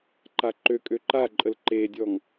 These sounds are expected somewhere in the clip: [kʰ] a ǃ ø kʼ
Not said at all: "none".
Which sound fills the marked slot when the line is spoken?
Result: ǃ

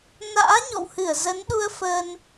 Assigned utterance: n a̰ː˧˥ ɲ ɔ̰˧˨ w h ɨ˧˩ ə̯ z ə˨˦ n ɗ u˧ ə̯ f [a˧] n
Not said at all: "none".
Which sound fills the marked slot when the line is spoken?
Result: ə˧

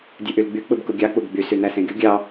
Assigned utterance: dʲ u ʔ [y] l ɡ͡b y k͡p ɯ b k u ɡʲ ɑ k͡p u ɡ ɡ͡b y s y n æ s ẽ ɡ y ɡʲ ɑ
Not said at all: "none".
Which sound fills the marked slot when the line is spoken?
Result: y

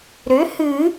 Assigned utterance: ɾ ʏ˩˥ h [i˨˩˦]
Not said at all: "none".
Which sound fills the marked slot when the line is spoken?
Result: ɨ˨˩˦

